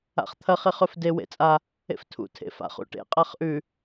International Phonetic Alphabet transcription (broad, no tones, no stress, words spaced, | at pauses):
a̰χt̪ʰɐχ eχɵfdew ḛt͡sʼa | ḛftʰṵ tʰḛfa̰χ ṵʈḛ qʼaχʔʉ